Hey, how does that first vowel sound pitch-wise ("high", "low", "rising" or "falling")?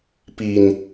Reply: low